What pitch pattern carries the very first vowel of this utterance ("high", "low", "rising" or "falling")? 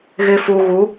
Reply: low